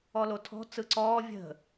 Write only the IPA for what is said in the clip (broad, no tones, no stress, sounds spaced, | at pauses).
ɔ l o tʰ ɔ̤ t͡s ɯ ǀ ɔː vʲ ə̤